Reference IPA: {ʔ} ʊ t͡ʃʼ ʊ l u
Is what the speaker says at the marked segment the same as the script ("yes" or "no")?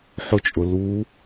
no